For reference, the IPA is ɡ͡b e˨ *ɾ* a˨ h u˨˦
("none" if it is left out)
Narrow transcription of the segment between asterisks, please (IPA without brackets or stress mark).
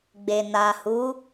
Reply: n